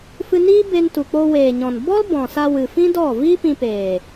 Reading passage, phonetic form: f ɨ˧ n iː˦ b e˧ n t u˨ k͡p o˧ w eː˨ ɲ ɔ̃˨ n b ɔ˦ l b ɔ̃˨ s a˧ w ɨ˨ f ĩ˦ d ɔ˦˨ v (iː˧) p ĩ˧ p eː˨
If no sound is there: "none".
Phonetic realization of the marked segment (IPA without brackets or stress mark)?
iː˦